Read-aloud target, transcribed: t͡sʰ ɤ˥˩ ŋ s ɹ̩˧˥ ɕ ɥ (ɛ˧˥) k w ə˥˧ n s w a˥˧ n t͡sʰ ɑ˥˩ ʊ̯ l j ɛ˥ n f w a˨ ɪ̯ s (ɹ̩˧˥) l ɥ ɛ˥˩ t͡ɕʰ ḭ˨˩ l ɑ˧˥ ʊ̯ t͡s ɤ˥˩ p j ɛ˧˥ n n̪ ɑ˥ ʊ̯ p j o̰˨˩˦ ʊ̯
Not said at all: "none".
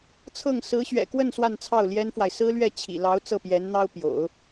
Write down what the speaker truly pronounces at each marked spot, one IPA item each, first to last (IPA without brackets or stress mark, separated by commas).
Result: ɛ̰˨˩, ɹ̩˥